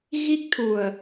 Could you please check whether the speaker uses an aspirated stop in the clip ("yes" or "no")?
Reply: yes